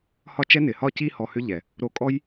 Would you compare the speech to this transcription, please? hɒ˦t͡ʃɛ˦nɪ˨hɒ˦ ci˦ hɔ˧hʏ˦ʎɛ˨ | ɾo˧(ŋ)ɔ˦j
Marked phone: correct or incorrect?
incorrect